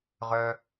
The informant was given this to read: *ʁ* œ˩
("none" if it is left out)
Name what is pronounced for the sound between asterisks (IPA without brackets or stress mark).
ʁ